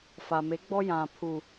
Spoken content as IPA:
fa˨me˨˦ɡ͡bɔ˦ jã˨ pʰu˨

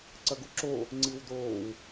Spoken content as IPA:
ǀɐɡuǁo | ŋ͡ǀiwdoːw

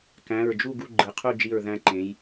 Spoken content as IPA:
kæ̃˩˧˩ɹd͡ʒu˥˨ ɡu˥˨ɡ͡ǃɯ˩˧qʰu˥˨ d͡ʒi˧˩ɹ ðæ̃˧ǃẽ˩˧j

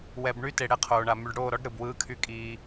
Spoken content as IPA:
wɛ˨bɳy˦te˨ ɽɛ˦qʰoː˨ɳa˨ my˨ɖɽoː˦˨ɾɔ˦ɖ ɾɯ˨b wɯː˦kʰy˦kʼiː˦

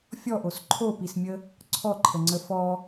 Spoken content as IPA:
fʲɔʔos ǃʰopismʲə | ǀʰɔǃʰəŋ͡ǀə fɔ

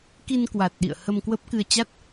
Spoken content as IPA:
ki˧nkwa˨˩t̚ɗḭ˧˨ə̯ hə˧mkwə˦˥p̚kɨ˧ə̯ t͡ɕa˦˥t̚

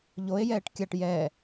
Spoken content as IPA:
ʎoe̯jɛːʈ kʲaʈ jɛ

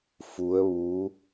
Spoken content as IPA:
fu˧˥ə̯ʋu˧˥

